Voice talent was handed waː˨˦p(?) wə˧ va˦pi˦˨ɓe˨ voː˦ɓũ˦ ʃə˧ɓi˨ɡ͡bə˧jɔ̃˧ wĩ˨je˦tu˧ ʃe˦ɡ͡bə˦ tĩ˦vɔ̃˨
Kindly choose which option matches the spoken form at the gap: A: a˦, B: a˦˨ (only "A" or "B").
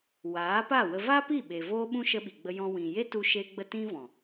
B